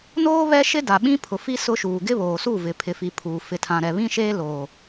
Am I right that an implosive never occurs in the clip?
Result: no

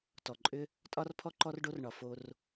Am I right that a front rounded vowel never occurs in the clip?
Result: no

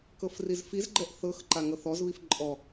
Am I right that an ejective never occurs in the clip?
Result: no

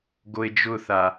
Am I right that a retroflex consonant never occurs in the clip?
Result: yes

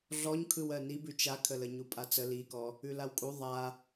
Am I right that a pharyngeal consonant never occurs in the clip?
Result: yes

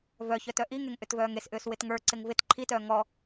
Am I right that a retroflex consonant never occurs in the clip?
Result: yes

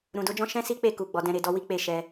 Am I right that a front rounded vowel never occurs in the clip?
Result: yes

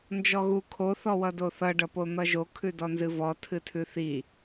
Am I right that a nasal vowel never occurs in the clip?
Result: yes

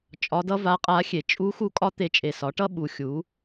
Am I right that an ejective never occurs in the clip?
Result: no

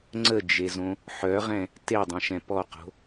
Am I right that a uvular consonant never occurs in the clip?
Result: no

